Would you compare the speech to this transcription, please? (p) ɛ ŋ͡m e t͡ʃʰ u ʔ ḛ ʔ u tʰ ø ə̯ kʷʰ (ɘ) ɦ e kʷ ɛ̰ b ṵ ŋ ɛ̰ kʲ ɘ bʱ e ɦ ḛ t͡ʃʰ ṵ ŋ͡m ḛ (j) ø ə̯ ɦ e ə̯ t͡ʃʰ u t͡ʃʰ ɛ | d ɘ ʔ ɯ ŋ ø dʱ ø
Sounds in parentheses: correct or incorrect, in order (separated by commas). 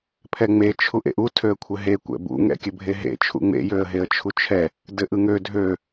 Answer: incorrect, correct, correct